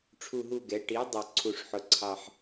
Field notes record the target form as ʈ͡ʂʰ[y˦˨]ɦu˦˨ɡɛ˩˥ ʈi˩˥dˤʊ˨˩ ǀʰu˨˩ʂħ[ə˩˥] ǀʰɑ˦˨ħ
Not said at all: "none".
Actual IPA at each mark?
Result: u˦˨, ʊ˩˥

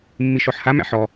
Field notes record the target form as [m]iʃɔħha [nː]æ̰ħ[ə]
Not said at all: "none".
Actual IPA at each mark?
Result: mː, m, ɔ

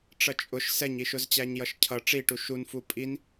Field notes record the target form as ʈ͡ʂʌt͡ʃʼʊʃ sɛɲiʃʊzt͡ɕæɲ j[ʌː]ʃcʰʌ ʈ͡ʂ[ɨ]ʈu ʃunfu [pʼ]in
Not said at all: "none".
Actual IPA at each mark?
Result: ʌ, i, pʼ

